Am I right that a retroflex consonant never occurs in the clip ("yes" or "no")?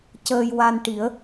no